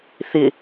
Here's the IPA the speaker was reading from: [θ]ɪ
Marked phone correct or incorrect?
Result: correct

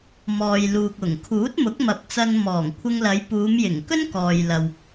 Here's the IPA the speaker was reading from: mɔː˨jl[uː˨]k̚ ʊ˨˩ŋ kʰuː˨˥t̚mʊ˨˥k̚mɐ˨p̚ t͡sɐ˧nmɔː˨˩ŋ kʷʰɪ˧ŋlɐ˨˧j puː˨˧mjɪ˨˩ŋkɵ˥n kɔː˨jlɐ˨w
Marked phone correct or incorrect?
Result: correct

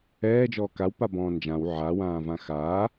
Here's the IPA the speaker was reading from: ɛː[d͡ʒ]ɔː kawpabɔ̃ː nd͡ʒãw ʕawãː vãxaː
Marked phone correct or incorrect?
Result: correct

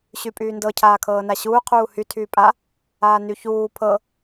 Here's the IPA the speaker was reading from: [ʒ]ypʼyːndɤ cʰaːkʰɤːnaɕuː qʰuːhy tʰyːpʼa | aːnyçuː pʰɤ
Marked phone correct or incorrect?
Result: incorrect: ɕ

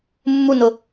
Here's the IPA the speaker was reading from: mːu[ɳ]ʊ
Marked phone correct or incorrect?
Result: incorrect: n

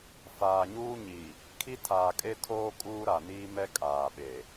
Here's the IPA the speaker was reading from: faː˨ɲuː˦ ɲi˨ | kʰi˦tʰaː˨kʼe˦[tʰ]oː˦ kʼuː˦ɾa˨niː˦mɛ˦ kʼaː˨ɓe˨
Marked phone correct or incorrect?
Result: correct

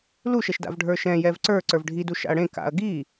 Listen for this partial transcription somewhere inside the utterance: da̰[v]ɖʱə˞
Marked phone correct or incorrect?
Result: correct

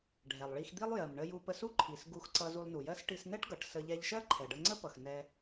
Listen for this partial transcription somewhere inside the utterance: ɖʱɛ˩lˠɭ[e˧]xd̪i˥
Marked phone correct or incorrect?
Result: incorrect: i˧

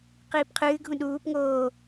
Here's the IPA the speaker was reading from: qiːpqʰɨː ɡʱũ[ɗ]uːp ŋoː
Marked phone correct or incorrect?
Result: correct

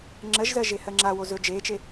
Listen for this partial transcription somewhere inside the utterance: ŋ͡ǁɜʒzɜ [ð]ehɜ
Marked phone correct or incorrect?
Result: incorrect: ʒ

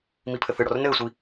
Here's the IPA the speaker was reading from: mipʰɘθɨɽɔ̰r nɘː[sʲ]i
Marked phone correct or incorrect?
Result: incorrect: sʷ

